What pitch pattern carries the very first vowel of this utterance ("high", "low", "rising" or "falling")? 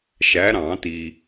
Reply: rising